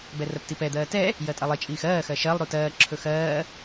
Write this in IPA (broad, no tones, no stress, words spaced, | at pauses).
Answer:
bɛrɜptipɛ d̪ɜːtɛ | jɜtʼɐlˠi t͡ʃʼiːxɜː xɜʃɜlˠ ɾutɜː ǁʰɵxɜː